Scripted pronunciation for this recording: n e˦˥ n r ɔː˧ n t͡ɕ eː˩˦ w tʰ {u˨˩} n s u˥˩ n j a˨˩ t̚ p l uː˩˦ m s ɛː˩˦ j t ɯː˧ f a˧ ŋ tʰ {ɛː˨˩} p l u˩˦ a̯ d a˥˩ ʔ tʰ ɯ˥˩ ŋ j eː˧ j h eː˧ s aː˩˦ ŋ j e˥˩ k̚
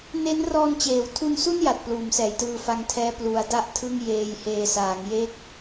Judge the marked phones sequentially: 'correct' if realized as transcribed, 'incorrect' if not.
incorrect: u˧, incorrect: ɛː˦˥

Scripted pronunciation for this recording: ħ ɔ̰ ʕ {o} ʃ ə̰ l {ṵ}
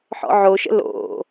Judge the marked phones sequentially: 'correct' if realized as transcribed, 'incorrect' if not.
correct, incorrect: o̰

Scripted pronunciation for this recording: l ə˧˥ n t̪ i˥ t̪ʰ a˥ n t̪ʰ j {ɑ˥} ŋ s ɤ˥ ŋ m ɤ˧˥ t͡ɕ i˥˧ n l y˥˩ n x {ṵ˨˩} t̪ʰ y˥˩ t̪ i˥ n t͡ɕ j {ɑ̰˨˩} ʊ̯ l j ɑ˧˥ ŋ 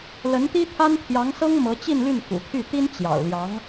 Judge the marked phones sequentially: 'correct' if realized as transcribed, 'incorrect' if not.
incorrect: ɑ˧˥, correct, correct

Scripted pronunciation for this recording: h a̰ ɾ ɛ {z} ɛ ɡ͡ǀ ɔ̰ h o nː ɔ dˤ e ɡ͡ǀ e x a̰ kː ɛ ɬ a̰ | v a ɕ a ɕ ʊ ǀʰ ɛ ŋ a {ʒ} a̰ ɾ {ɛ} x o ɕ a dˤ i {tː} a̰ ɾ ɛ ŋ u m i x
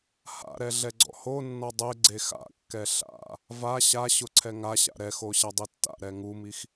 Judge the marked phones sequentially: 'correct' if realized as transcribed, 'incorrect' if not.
incorrect: ɮ, incorrect: ɕ, correct, correct

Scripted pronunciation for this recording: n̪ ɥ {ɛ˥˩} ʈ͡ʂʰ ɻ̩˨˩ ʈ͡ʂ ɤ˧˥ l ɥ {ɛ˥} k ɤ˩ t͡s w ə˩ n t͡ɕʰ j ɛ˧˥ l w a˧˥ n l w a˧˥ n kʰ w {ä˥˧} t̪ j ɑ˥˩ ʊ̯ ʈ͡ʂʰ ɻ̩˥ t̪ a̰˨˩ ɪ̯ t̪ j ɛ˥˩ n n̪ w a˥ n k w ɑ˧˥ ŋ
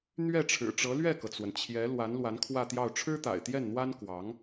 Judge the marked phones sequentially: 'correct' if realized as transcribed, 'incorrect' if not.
correct, incorrect: ɛ˥˩, correct

